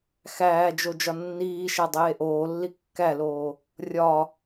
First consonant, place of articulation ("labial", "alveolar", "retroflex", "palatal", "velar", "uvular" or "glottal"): velar